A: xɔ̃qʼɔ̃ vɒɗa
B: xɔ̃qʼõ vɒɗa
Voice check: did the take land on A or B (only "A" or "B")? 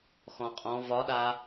A